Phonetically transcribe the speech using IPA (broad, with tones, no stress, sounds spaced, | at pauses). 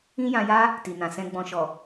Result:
ĩ˦ j ã˧ j a˦ | t i˨ n ã˨ s ɛ̃˧ ɡ͡b ɔ̃˨ ʃ ɔ˨